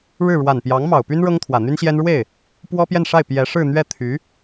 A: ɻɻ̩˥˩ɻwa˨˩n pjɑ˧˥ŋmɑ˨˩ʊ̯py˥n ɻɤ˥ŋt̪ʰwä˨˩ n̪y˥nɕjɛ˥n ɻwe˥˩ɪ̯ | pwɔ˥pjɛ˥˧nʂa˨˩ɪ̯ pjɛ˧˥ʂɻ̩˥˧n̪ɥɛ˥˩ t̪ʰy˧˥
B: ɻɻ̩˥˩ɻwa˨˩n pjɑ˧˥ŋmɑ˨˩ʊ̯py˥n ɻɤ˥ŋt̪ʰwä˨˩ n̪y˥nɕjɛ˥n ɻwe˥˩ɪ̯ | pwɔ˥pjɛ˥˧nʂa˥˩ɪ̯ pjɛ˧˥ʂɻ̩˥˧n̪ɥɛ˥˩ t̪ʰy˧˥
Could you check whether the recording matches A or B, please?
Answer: B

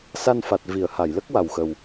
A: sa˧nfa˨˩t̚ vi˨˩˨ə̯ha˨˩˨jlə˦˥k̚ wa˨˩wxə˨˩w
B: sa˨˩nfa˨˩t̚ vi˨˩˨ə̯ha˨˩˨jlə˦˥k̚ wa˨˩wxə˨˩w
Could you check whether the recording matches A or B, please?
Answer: A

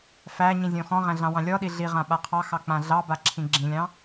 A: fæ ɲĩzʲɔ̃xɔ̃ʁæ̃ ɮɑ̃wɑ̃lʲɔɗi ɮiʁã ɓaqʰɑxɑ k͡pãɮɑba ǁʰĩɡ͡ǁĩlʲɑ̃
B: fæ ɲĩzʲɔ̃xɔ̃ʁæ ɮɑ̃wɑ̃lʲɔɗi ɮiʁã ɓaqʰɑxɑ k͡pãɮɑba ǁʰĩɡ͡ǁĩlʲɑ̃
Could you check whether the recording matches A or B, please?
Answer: A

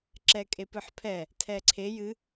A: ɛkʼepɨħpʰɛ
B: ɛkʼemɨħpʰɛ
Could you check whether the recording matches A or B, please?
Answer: A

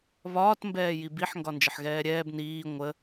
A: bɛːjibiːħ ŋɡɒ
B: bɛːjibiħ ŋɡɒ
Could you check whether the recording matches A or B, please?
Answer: B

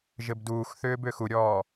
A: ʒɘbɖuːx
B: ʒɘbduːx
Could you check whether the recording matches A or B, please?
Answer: B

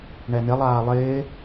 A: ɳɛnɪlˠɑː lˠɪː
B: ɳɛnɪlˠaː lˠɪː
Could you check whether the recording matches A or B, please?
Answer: B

